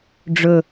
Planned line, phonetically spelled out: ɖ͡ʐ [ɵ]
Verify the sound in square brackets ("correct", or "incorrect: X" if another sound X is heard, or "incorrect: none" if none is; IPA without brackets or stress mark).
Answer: correct